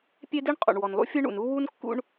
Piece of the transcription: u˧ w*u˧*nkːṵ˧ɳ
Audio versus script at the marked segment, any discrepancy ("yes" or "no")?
no